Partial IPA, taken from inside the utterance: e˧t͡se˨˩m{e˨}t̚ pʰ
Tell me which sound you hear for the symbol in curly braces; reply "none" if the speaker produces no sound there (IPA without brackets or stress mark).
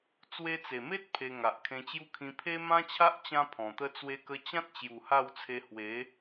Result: e˦